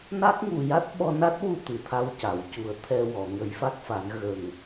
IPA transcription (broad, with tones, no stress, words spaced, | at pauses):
na˦˥k̚ŋu˨˩ja˦˥t̚ ɓɔ˧na˦˥t̚wu˧ t̪ɨ˨˩˨t̪ʰa˧wca˨˩˨wcu˨˩˦ə̯ t̪ʰɛ˧wɔ˨˩˨ ŋə˨˩˦jfa˦˥k̚fa˨˩˦n ɣə˨˩ŋ